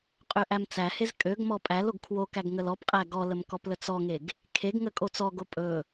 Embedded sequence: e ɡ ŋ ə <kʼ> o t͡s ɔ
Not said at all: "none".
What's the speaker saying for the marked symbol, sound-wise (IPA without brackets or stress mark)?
kʼ